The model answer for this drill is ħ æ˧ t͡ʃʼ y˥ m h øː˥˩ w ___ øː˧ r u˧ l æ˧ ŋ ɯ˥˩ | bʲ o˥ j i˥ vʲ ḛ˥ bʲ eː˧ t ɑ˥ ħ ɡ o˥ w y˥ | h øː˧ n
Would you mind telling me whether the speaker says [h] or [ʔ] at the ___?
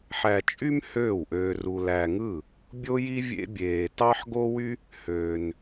ʔ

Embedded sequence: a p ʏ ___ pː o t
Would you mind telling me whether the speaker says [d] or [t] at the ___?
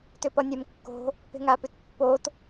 t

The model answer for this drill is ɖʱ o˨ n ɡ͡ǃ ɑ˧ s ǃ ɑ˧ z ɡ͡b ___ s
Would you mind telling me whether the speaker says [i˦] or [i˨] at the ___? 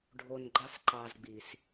i˨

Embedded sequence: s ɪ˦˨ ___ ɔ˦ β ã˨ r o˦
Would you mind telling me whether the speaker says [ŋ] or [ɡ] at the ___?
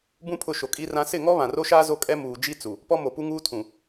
ŋ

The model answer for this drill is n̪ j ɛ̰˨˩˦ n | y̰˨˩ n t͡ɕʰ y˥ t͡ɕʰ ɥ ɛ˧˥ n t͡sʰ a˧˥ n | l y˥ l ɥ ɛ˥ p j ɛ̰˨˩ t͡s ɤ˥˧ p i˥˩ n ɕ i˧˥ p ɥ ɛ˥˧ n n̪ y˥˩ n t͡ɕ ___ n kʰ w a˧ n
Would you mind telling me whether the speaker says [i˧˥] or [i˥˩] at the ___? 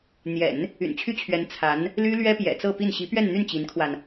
i˧˥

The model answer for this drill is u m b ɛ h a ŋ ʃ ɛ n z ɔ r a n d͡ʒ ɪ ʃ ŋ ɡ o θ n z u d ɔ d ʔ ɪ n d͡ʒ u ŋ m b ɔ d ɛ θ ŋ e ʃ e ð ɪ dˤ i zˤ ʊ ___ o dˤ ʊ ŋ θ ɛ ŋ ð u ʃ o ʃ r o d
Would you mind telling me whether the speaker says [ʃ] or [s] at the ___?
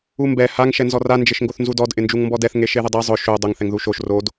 ʃ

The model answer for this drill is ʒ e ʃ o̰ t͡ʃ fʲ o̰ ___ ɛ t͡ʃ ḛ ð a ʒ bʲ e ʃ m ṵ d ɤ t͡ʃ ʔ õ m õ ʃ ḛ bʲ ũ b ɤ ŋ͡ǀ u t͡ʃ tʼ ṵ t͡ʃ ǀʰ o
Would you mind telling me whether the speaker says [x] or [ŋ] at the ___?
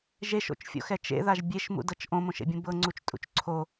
x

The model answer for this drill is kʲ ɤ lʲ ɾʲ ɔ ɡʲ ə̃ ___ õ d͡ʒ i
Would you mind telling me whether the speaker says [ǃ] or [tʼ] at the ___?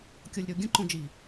ǃ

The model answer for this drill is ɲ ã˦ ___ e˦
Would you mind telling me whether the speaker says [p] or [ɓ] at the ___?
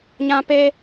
p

